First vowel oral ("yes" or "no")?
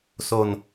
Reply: yes